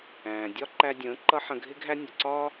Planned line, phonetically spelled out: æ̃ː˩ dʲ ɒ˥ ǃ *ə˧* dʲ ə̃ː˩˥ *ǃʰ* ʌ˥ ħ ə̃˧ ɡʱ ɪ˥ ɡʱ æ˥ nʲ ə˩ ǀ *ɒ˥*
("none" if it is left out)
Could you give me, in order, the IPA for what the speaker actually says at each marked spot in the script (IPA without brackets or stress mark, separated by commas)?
æ˧, ǃ, ɒː˥